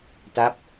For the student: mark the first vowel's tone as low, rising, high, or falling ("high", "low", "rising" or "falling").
falling